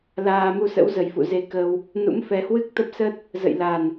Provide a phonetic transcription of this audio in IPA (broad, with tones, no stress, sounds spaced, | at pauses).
l aː˧ m u˧ s ə̰˧˥ w z ə˨˩ j f ṵ˧˨ z e˨˦ k ə˧ w | n ṵ˧˥ m f ɛ˨˦ h w ɨ˦˥ k̚ t̪ ə˦˥ p̚ s ə˦˥ t̚ | z ə̰˧˨ j l a˨˩ n